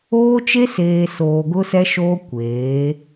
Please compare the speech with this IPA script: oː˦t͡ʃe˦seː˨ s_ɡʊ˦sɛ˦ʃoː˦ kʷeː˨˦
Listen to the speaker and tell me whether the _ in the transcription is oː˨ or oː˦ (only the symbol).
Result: oː˨